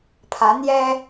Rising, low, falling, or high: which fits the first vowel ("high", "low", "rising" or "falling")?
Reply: rising